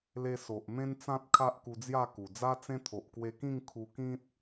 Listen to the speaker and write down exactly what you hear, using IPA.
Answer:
le˧so˨ʔ mẽ˦nt͡sã˦t̚ kʰa˦ʔku˧d͡zja˥˧ku˨˩ d͡za˦t͡sẽ˦ t̪ʰo˨ʔkwe˧kĩ˥˧ŋ kʰu˧kĩ˦t̚

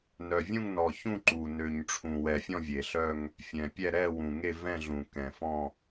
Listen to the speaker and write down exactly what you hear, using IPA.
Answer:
nœ˨˩ vʲũ˥˧ŋnɔ˨˩çũ˥˧ ǃu˨˩ nø˨˩ɲʈ͡ʂʰũ˨˩wɛ˨˩fʲɔ̃˥˧ vʲe˨˩ɬœ˥˧ŋ | fʲɛ̃˨˩pʲɛ˥˧ ɾɛ˥˧ wũ˨˩ŋe˥˧vɛ̃˥˧ɮũ˨˩ kɛ̃˨˩fɔ̃˥˧

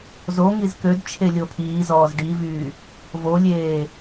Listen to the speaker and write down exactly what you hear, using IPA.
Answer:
zo ŋizkød t͡ʃʰelʲopʰiː zɔːzɖivyː | volʲeː

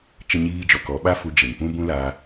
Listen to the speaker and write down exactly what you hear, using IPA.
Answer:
t͡ʃə˦ɲiː˦d͡ʒɔ˧kɔ˨˦ ɓa˦fu˧d͡ʒe˨ŋ pũ˦bũ˦ la˧

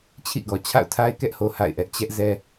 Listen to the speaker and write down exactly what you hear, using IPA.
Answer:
t͡ɕʰḭ˦˨ɡɔ˨ t͡ɕʰa̰˦˨ʊ̯tʰa˦ɪ̯kɛ˦ʔho˨ ha̰˦˨ɪ̯ʔɛ˦ʔ t͡ɕɛ˦ʔ zɛ˦

